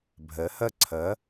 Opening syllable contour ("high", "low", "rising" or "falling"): rising